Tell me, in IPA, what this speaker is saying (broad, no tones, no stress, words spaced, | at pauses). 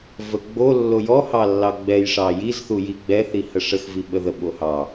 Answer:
vəɡ͡bo lːojɔhɑlːɑ ɡ͡bɛjʂɑ jizθuji ɡ͡bɛθi həʂəxvi ɓəðə ɓohɑ